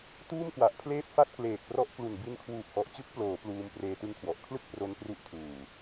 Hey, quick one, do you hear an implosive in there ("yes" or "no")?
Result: no